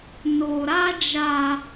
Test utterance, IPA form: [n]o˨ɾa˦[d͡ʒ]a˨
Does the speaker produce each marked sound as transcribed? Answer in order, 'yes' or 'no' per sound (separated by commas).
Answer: yes, yes